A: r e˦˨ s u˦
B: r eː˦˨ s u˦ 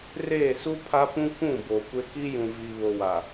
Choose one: B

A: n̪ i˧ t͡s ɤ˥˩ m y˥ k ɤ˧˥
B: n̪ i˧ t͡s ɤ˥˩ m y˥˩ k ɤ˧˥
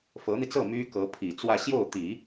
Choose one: A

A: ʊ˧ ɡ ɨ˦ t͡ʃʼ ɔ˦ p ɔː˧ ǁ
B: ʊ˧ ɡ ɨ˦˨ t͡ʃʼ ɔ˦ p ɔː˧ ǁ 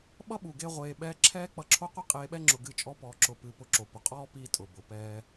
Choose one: B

